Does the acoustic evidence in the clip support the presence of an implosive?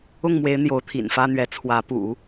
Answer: no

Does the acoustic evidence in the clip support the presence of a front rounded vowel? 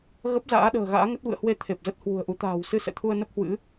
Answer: no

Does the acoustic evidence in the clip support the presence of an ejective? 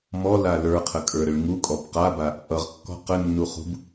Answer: yes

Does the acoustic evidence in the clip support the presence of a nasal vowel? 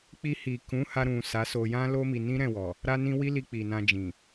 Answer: yes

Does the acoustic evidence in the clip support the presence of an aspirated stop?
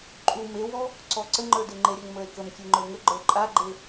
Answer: no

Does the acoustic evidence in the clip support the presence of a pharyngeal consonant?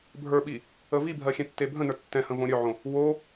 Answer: yes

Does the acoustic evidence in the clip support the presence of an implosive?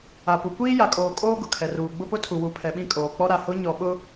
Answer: yes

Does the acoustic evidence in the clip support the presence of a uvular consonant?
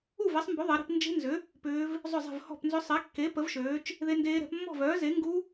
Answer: no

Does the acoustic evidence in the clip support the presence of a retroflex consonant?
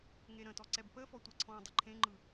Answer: no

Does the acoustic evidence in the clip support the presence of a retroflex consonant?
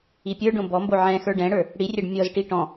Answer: yes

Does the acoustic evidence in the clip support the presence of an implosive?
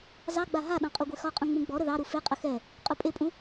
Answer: yes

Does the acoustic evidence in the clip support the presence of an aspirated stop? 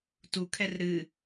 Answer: yes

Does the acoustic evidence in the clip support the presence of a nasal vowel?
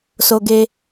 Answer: no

